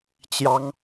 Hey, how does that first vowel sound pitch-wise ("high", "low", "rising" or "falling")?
high